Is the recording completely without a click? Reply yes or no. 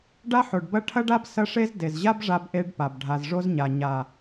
yes